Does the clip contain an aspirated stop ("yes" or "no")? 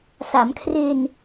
yes